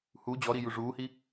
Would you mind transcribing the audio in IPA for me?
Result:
h u d͡ʑ ɔ ɾ i j u ʐ uː h i

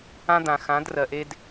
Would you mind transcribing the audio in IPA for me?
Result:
ã˦ d̪ ã˨ x ã˨˦ d r ɜ˨ ʔ e˦ d

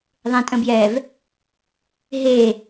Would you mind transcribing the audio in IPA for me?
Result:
ðˤ ẽ tʼ ə̃ b j ɛ v | ɦ e

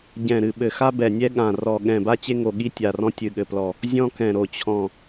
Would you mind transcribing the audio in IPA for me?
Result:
ɟ ɛ̃˧˩ ɾ ɨ˧˩ ɓ ɘ˧˩ x a˥ b ɛ˧˩ nʲ ɛ˥ ɠ ã˧˩ r ɔ˧˩ ɠ ɛ̃˧˩ b a˥ t͡ɕ e˥ ŋ o˧˩ ɠ i˥ tʲ a˧˩ r ɔ̃˥ tʲ ɨ˧˩ ɠ ɘ˧˩ p l ɔ˧˩ | zʲ ɔ̃˥ k ɛ̃˧˩ ɾ o˧˩ t͡ɕʰ ɔ̃˧˩

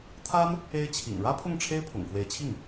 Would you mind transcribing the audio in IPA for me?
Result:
t̪ʰ a˥ n | e˥ ɪ̯ t͡ɕʰ ḭ˨˩ ŋ ɻ ä˥ pʰ ʊ˥˩ ŋ ʈ͡ʂʰ e˥ ɪ̯ pʰ ʊ̰˨˩ ŋ k w e˧˥ ɪ̯ t͡ɕʰ i˥˩ ŋ

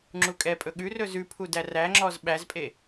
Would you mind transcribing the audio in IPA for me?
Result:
ŋ͡ǁ u kʼ ɛ pʼ ɵ ɠ ʉ r ɵ z ʉ pʰ u d æ r æ ŋ͡ǁ ɔ z ɓ æ z pʼ e

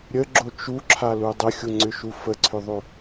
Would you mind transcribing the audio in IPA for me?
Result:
ɾʲ ə ɡ͡ǁ o t͡ʃ u ǁʰ a l u dˤ ə xʲ u ŋ͡ǀ ʏ ʃ u f ə ǀʰ ʏ ðˤ o

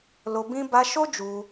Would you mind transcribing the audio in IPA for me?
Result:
l o˧ b ĩ˦ b a˧ ʃ o˦ d͡ʒ u˧

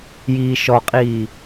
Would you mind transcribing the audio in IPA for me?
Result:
j iː ʃ ɔ qʼ iː

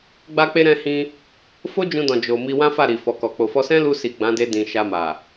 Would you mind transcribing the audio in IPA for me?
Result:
ɡ͡b a˧ k͡p e˧ ɾ ɛ̃˧ h ĩ˧ | f o˦ d͡ʒ ũ˧ d ɔ̃˨ d͡ʒ o˨ m i˧ w ã˦ f a˦˨ ɾ i˨ f ɔ˨ k ɔ˨ k͡p o˨ f ɔ˧ s ɛ̃˦ l u˧ s i˨ ɡ͡b ã˨˦ d e˧ d ĩ˨ ʃ a˧ m a˨

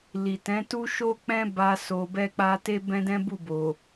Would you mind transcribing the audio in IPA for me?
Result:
l i˨ t ɛ̃˨˦ t u˦ ʃ o˦ k͡p ɛ̃˦ b a˧ s o˨ b ɛ˧ k͡p a˧ t e˦ b ɛ̃˦ d ɛ̃˦ b u˦˨ b o˨

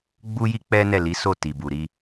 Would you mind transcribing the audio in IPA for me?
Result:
ɡ͡b u˦ j i˦ k͡p ɛ˦ n ɛ˦˨ l i˨˦ s o˦˨ t i˨ b u˨ ɾ i˧

